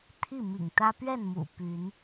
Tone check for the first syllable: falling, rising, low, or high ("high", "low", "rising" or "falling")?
falling